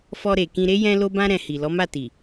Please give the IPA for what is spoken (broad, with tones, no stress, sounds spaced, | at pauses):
f ɔ˧ ɾ e˨ k ĩ˧ ɾ e˦ j ɛ̃˦ l o˦ b ã˦ ɾ ɛ̃˧ h i˨ l ɔ˨˦ m a˦˨ t i˨